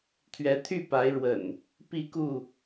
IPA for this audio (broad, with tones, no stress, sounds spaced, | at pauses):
t̪ʰ ɥ ɛ˨˦ t̪ʰ y˥˨ p a˨˦ ɪ̯ ɻ w ə̰˨˩ n | p i˥˨ k u˥˨